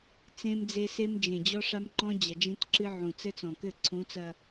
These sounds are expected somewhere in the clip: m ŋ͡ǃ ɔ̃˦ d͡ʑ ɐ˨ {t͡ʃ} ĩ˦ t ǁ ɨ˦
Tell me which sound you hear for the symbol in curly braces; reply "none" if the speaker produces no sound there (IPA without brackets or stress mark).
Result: d͡ʒ